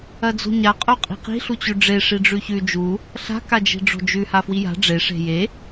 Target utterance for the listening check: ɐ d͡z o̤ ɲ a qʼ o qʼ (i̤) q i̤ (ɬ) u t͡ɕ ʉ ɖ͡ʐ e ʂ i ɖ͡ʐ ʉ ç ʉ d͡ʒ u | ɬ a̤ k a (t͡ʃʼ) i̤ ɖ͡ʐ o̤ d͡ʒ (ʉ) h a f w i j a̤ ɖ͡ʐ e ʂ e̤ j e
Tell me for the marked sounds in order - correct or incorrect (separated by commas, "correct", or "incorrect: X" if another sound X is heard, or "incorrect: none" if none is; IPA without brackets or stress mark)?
correct, correct, incorrect: d͡ʒ, correct